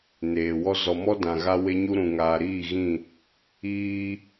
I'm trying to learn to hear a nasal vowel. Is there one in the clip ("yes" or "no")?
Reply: yes